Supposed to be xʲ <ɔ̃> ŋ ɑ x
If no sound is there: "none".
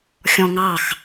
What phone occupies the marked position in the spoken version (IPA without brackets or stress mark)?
ɔ̃